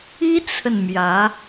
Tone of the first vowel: high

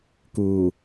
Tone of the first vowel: low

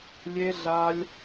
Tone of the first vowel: high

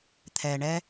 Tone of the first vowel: low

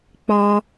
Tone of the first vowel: high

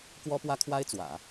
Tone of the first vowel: high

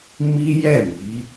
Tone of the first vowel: high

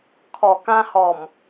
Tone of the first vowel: low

